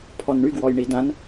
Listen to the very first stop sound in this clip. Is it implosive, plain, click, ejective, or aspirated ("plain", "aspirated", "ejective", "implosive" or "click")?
aspirated